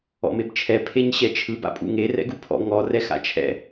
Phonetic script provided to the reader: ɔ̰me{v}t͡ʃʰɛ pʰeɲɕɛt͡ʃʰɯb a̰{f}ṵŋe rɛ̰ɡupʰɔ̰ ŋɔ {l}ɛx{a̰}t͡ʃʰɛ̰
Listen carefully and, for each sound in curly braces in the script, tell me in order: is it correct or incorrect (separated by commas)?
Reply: incorrect, incorrect, incorrect, correct